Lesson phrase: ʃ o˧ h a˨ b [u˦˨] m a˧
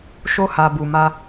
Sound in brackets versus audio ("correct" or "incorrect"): incorrect